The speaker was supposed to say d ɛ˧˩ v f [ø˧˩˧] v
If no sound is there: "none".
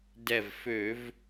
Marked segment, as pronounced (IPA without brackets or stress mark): ø˧˩˧